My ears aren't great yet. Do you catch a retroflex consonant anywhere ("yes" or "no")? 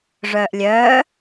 yes